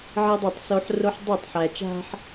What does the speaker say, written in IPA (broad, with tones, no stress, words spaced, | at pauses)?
ʕi˦dˤɤ˦˨tˤso˦ħ ro˦ħdˤi˦˨tˤ ħæ˨t͡ʃa̤˦ħ